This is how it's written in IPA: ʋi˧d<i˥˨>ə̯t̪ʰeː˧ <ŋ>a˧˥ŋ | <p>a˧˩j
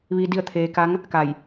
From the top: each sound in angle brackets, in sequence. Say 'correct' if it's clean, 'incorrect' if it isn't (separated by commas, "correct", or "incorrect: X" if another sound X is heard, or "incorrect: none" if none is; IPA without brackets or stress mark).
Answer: correct, incorrect: k, incorrect: k